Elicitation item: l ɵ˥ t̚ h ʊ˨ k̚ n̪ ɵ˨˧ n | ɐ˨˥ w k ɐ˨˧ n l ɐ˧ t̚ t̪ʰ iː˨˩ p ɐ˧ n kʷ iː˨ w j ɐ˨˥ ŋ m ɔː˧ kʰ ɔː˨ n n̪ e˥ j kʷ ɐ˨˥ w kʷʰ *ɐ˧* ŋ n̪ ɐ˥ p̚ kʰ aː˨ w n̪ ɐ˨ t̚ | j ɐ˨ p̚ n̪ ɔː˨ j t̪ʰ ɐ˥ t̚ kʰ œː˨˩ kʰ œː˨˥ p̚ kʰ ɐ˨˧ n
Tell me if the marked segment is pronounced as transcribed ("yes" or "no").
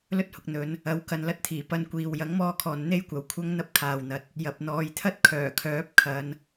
no